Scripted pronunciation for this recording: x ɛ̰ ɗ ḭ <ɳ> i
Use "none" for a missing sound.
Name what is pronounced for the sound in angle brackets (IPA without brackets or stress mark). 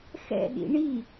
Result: ɳ